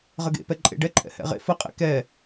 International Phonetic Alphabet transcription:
ʁəɡḛpɛ ǃʼḛɖɛǃʼɛ̰ hɛ̰ʁḛ fəqʼḛ kɛ

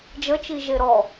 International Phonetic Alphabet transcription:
d͡ʒət͡ʃi ʒeɾɔ

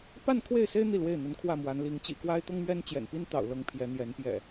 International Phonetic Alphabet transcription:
pa˥˨nkʰwe˥˨ɪ̯se˦ɪ̯ n̪i˥˨lwe˥˨ɪ̯ n̪ə˨˦n kʰwä˥˨mwa˨˦n li˨˦ŋ t͡ɕḭ˨˩kwa˦ɪ̯t̪ɤ˦ŋ mɥɛ˦nt͡ɕjɛ̰˨˩npi˦n t̪ɑ̰˨˩ʊ̯lɤ˨˦ŋ pʰjɛ˨˦n̪jɛ˨˦n pjɛ̰˨˩

